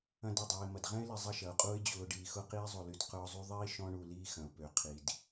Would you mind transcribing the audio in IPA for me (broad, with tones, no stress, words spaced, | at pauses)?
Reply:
ɐ̃˦dɛ˩ dˤuː˩ɪ̯mɐ˩dʁɛ̃˦ɪ̯lɪ˨ zˤɐ˦ʃɐ˩ʊ̯qʼuː˦ɪ̯ d͡ʑʊː˨ ɖiː˨xʊ˦ qiː˦zˤo˨ly˨d qʊː˦zˤu˥ ðˤiː˥ʃɔ̃˦ ɳu˨liː˦xɐ̃˩ʊ̯ pø˩ qʰi˩d